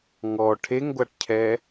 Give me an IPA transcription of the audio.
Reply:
ŋɔ ʈʰeŋɡʷaʈcʰɛ

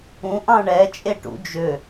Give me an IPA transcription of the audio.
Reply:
ũʔɑ̃ ɳɛt͡ʃʼeʈṵ d͡ʒø

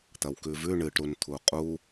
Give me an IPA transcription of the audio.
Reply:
t̪ɐwkʉvʉ ɳɨʈ ɾunt̪ʰuqʼu

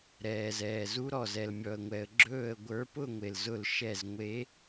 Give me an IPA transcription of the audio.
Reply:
ɾɛː˩zɛː˩zu˨˦ɾɔ˩ zɛ˩lmʲɔ˩ə̯ŋʷɛ˩ə̯ ɡ͡ǁɵː˧˩ə̯ ɡʷə˞˨˦pʊ˥˧ŋʷe˩lzʊ˧˩l ʃɛ˧˩zŋʷe˨˦

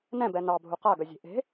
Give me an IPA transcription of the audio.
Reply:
nɛ̃bɛ nɑbʱu qaɡœzʲe̤ ʔe̤

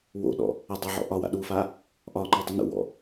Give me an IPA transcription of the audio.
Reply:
wo̰ɗɔ̰ | ɐdˤa ʕɔ̰ʔɒwa̰ ɗufa | ʔɒŋ͡ǃɔ dˤinṵwɔ̰

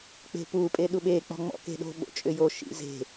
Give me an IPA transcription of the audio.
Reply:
k͡pe̤pupʼe ɗuɓek͡pɔ̤ ŋ͡mɔ̰ke̤ɗo̤ ɓo̰t͡ʃʼʏjoʃḭ ze̤

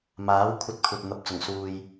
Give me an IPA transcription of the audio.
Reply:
maː˨˥w kʷʰɐ˥t̚kʷʰɐ˧t̚ n̪ɐ˨p̚ t͡sʊ˨˩ŋsuː˧j

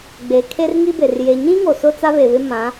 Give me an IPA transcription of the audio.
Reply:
ɡ͡be˨kʰe˦rŋi˦be˨r je˨ɲĩ˦ ŋo˨sʊ˦ t͡sa˦βe˨βɪ˦ mã˨˦

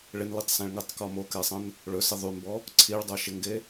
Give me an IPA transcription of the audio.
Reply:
ɭɪnlitˤsɛ̃ɭ ŋɪtˤkɔ mokɛsˤə̃n | ɭɵsɪ ðˤymbɔ | ǀʰiɭdˤoʃɪŋɡe

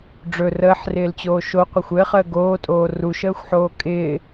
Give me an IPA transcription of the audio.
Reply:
ɖ͡ʐɵ rəːħrɪːlt͡ɕoː ʃoqʷɪxʷ ɘːχəː ɡoːtʼoː ruʃəːxʷħoː kʼɪː

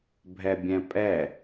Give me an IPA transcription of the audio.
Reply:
bʱɛbʲɛ̃pʼɛ

